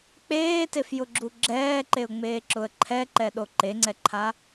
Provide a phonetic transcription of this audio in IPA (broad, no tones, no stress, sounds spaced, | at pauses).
k͡p eː t e f j ʊ ɡ͡ǁ u ɡ͡ǁ ɛː ǃ e ʊ̯ ŋ͡m eː ǁ ʊ ə̯ ǃʰ ɛ ǃ ɛ ɗ o ǃ e ŋ͡ǀ ɛ ǃʰ a